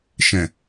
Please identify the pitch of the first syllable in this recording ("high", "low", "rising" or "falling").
low